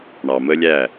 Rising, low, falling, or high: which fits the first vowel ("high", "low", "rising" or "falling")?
low